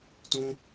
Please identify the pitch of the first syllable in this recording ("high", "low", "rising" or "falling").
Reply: high